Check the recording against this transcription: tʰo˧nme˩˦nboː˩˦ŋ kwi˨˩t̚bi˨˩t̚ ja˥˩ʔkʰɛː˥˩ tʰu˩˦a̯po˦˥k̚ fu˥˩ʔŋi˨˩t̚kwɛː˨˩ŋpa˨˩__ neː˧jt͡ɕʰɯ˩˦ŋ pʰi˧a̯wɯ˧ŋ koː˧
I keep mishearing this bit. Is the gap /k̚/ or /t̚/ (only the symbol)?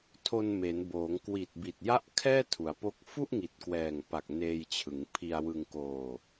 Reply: k̚